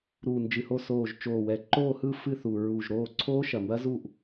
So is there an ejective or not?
no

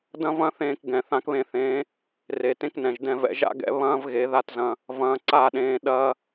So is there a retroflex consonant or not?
no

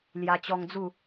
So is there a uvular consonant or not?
no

